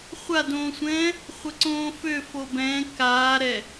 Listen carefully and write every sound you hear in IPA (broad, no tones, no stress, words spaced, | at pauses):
χʷadõːsʷɛ̃ː | χʷɘǀõːfø fobɛ̃ kaːɾɛ